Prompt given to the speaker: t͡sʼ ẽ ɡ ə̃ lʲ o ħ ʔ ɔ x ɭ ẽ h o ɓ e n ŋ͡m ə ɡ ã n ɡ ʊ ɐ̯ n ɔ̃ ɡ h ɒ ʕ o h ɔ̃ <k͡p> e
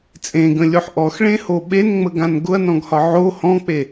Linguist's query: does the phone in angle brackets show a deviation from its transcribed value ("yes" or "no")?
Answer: no